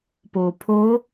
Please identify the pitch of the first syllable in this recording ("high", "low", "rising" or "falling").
low